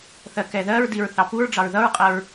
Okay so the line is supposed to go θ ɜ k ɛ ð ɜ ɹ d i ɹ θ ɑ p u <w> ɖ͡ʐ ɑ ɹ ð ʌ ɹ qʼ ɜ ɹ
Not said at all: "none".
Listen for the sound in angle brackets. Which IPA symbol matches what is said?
ɹ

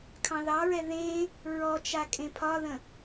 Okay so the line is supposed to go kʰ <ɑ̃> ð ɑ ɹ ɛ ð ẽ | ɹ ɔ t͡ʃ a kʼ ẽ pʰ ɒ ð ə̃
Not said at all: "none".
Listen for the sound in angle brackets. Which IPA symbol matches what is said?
ɑ̃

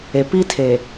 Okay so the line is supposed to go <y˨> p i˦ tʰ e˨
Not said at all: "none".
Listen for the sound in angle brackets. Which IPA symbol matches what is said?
e˨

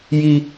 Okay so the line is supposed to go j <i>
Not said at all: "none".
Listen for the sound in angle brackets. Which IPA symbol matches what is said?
i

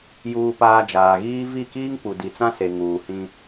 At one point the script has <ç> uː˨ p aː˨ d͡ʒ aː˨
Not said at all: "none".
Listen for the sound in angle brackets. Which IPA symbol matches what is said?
j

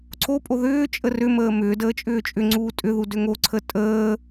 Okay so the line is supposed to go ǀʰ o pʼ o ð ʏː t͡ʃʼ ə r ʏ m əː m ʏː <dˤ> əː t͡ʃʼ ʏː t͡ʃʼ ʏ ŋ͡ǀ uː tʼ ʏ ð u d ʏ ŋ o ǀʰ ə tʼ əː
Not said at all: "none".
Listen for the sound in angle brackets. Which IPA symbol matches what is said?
d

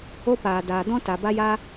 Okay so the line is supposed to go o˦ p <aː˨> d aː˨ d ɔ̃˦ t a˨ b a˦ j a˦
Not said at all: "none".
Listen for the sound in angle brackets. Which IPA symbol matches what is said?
aː˨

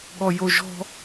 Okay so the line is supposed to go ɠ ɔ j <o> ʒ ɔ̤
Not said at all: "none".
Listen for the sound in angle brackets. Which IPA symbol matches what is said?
o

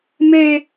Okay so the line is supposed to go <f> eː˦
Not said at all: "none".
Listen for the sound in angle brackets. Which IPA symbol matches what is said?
m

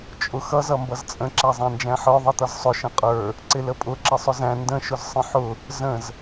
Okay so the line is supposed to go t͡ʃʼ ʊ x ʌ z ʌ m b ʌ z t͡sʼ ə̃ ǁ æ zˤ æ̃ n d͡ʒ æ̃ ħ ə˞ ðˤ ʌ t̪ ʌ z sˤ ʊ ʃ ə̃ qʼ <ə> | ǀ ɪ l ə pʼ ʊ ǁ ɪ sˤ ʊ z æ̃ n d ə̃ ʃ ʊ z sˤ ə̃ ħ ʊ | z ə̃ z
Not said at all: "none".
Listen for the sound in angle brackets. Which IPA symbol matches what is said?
ə˞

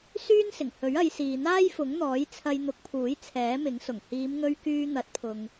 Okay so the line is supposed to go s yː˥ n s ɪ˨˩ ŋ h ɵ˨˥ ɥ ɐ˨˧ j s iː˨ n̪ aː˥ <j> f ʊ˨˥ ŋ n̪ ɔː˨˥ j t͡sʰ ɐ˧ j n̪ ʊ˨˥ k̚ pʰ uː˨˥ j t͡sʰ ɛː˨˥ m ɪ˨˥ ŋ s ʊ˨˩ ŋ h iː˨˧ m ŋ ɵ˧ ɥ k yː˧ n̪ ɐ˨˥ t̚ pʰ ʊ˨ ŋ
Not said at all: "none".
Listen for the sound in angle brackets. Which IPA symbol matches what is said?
j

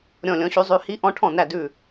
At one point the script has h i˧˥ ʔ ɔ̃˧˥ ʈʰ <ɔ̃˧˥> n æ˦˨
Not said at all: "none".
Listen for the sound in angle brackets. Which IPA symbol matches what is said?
ɔ̃˦˨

